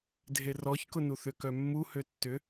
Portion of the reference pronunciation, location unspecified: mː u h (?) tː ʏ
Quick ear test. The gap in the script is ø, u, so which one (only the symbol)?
ø